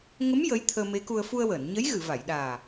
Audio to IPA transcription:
ŋ ə˧˥ m j ə˧˥ j t̪ʰ əː˧ m e˧˥ k u˧ ə̯ f u˧ ə̯ w əː˨˩˨ n ɲ ə˧˥ j ɣ ɨ˨˩˨ v a˨˩˨ j ɗ aː˨˩

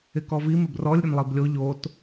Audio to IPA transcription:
ɪ k ɔ v i m ɪ b r ɔ lʲ ɾʲ ʊ n lˠ i b lʲ o ʎ o t

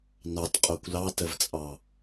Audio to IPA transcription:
n ɑ t qʼ o kʷ l ɑ t ə v t͡sʼ ɑ

